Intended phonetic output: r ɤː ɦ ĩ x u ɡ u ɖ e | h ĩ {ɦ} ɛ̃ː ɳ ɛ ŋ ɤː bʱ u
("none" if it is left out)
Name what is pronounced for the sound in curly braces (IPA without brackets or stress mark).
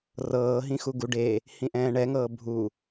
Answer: ʔ